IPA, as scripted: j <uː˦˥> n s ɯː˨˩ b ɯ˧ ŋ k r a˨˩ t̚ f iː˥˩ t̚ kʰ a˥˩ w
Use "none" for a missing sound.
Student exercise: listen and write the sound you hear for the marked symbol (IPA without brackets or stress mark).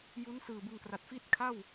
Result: u˦˥